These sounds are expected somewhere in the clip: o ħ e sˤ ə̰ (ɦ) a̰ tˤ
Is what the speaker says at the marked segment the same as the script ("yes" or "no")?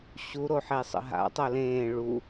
yes